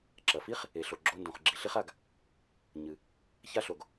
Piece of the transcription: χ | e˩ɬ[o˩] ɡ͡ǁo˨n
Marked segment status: correct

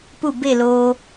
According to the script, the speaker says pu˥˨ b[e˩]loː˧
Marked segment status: incorrect: e˥˨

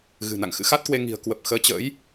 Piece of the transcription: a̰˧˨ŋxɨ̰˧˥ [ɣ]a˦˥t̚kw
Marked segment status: incorrect: x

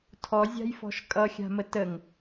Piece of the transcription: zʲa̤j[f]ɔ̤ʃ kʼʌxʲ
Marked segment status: correct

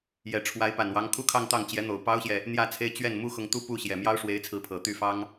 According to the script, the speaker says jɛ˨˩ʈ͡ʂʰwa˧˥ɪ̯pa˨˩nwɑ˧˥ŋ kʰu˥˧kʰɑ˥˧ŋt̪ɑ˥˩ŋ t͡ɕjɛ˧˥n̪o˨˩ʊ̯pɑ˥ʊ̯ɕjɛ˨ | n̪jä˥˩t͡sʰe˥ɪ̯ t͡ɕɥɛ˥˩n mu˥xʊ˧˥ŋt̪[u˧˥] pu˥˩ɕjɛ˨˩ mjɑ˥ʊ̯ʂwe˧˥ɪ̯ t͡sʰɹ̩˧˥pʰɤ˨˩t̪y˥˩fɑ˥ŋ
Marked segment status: incorrect: u˥˧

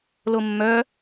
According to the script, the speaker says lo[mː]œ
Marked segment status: correct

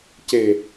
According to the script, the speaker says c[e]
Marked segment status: correct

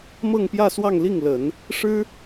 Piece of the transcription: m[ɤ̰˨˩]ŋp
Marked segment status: incorrect: ɤ˥˧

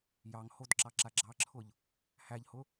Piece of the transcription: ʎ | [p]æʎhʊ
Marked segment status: incorrect: h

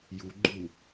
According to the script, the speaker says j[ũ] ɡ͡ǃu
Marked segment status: incorrect: u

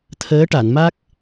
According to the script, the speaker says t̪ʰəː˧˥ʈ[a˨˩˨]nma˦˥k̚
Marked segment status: correct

